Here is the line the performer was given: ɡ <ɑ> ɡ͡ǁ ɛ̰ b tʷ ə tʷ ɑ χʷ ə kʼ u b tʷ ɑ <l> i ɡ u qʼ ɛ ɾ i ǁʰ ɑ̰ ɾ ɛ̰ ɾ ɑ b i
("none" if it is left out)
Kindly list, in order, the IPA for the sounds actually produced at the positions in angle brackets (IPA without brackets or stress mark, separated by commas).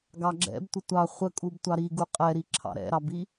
ɑ, ɾ